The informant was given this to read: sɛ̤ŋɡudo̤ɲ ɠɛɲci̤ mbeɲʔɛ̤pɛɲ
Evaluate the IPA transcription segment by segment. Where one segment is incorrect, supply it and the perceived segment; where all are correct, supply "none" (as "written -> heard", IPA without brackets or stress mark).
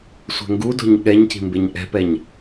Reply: s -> sʷ